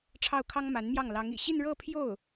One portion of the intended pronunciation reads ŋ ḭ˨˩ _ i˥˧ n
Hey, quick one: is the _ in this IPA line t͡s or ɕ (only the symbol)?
ɕ